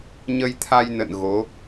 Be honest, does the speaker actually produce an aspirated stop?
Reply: yes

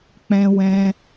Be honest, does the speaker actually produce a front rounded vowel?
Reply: no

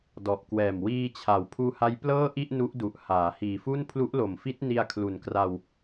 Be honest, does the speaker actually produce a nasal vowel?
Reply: no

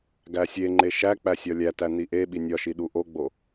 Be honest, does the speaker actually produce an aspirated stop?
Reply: no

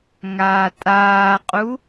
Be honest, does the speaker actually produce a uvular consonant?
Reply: yes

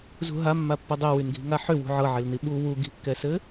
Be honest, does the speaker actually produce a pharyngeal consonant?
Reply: yes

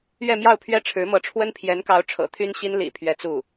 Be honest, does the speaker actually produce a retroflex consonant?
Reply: yes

